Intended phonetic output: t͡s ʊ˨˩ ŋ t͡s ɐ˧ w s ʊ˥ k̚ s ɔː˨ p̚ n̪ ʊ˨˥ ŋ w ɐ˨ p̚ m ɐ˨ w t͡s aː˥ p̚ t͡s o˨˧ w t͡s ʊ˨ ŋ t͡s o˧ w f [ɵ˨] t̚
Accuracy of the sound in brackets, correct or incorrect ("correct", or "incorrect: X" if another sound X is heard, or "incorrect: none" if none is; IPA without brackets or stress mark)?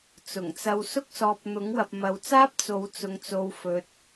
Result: incorrect: ɵ˧